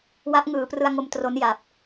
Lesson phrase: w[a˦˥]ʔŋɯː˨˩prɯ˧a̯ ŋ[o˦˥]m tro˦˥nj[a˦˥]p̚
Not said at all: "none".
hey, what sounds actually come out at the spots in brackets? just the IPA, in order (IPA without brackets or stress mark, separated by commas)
a˦˥, o˧, a˨˩